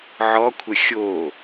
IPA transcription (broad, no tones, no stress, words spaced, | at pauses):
ʕɔkʷʰə xʲo